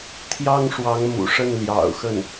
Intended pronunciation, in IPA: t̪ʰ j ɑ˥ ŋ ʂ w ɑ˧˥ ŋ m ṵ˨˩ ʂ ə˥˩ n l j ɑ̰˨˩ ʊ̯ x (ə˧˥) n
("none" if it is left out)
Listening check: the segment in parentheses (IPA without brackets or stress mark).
ə˥˩